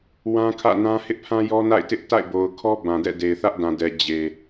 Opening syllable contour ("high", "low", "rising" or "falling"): high